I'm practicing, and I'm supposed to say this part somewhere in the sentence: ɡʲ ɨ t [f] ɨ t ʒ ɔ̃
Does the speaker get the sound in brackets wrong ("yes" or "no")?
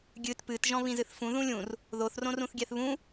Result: yes